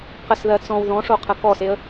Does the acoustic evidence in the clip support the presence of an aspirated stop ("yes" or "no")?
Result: yes